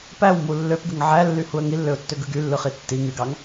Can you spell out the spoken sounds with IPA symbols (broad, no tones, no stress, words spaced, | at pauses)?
pæwmu lːøpɡɯŋ ʕælːyhuə̯ ŋilːøʊ̯tːøɡɯ ɡylːɯχi tːi ŋyɡɑŋ